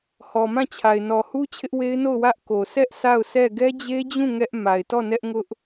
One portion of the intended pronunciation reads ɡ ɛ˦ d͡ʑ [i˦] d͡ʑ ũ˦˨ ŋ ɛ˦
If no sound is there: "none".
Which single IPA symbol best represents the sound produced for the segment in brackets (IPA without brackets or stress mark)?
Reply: e˦